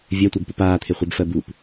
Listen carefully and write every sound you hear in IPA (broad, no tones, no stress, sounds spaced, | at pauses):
vʲ ɜ tʷ ɜ b p u p aː t̪ʰ e χʷ e b f ɜ b u p